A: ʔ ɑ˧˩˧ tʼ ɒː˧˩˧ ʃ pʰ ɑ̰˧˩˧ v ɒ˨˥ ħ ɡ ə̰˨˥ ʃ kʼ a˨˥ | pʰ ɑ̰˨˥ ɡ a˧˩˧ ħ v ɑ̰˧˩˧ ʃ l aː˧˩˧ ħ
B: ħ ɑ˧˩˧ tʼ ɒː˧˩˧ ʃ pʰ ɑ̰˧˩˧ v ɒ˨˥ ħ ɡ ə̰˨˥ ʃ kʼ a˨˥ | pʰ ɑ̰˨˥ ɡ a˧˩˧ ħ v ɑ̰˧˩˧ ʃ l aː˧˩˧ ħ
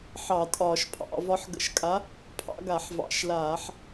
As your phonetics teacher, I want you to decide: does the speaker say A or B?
B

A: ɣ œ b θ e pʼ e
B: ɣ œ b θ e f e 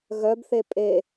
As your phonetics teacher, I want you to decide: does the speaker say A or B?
A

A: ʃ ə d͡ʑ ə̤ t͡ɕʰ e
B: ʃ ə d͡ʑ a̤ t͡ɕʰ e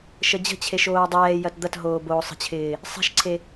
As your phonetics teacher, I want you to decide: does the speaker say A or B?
A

